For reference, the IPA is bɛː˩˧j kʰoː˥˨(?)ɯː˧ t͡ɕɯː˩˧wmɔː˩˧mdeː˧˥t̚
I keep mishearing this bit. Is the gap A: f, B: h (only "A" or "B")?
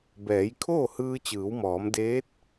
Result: B